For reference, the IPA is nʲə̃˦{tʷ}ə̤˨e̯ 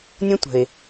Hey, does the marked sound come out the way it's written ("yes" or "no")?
yes